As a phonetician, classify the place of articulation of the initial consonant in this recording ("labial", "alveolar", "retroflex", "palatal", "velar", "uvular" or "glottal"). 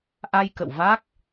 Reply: glottal